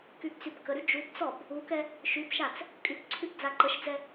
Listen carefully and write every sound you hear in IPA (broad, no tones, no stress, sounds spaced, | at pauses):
k y b t͡s y b k ə ɾ y d͡ʒ u b t͡s ɔ b | u k ɛ | ʃ y p ʃ a t͡s | kʼ y k ǀʰ y p d͡z a ǃ ə ʃ d͡z ɛ